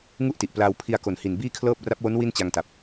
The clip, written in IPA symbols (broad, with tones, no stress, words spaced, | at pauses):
ŋu˥˩ʔti˨˩ʔplaː˧w pʰi˧a̯ko˨˩nhi˨˩n biː˥˩kʰlɤː˥˩p̚ ra˦˥p̚wo˦˥n wi˥˩nt͡ɕa˧ŋta˨˩p̚